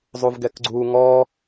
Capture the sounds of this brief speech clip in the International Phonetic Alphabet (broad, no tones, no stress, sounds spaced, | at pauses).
zˤ u v ɡ ɛ k ɡ͡ǀ u ŋ ɔ